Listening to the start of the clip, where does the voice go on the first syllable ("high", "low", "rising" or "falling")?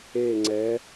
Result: falling